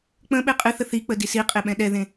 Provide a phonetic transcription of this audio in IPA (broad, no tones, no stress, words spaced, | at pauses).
k͡pə̃ ɓeqʼɨθə θik͡pə disiqʼe ɓɛ̃ɗɛðẽ